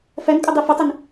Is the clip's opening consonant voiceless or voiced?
voiceless